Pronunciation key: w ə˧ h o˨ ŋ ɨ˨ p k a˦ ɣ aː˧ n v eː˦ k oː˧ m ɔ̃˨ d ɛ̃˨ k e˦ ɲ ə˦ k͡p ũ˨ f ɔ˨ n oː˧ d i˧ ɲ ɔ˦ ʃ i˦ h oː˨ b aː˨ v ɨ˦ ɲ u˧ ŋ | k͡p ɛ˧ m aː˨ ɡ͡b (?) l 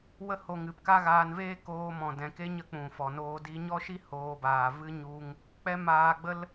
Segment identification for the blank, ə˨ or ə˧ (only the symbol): ə˧